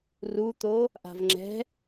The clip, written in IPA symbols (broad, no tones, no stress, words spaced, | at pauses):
rut̪o | ʔa̤vŋ͡ǁɛ̤